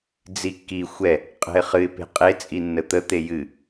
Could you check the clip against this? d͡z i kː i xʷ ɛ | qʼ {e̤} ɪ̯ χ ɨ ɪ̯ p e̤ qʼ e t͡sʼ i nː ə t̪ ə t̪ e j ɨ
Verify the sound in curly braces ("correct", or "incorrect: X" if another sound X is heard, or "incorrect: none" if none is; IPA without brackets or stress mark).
incorrect: ɛ̤